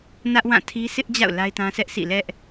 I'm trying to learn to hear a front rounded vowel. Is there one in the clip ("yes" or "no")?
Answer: no